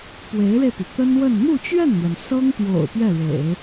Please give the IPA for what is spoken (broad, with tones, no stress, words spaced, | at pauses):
pwe˧˥ɪ̯ɻe˧ɪ̯py˩ t̪ə˥nwə˥˧n n̪u˥˧t͡ɕɥɛ˥˩nn̪jɛ˩n sɤ˥ŋpjo̰˨˩ʊ̯ pɥɛ˥˩ɻḛ˨˩˦ɪ̯